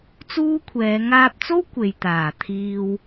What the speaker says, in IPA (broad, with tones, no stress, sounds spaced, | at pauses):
t͡s uː˥ kʷʰ ɛː˨˧ ŋ aː˧ p̚ t͡s o˥ w kʷ e˨ j t̪ aː˨˩ t̪ʰ iː˨ w